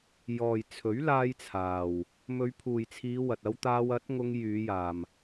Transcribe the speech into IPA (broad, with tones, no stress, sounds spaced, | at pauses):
j ɔː˨ j t͡sʰ ɵ˨˥ ɥ l aː˧ j t͡sʰ aː˨ w | m ɵ˨˧ ɥ pʰ uː˨ j t͡sʰ iː˨˧ w ɐ˨ t̚ ɐ˧ w t̪ aː˧ w ɐ˨˥ t̚ ŋ ʊ˧ ŋ j yː˨˧ j aː˨ m